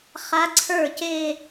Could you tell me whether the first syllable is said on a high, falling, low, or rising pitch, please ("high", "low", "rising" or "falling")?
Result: rising